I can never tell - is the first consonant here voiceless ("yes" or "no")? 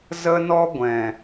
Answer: no